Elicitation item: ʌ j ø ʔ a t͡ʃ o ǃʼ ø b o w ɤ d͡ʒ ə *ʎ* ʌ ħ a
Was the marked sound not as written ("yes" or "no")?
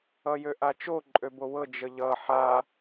no